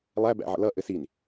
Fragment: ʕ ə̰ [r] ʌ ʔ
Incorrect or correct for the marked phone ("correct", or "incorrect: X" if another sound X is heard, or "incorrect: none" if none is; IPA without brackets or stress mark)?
incorrect: l